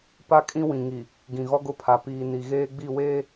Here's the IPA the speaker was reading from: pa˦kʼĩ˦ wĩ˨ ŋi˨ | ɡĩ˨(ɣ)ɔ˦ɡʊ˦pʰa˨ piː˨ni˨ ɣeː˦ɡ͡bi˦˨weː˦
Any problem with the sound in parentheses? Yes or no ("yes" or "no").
no